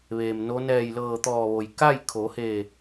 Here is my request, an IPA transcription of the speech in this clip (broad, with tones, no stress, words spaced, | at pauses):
ʋeː˩mno˧˥ nɛː˧˩jlɤː˧˩t̪ɔː˧˩ʋo˩j ka˥˨jkʰo˩˧heː˧˩